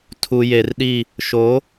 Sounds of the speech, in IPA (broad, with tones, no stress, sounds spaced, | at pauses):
tʰ u˨ j e˨ r ɗ i˦˨ | ʃ o˨˦